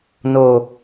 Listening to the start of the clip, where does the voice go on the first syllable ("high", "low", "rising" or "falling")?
low